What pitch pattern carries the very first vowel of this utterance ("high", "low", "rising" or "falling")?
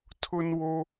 high